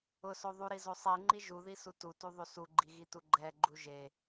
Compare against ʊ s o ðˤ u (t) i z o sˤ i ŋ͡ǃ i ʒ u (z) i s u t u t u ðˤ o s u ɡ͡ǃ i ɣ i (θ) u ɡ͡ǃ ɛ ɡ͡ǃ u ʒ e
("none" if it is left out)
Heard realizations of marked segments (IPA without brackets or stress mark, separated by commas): ɾ, ð, t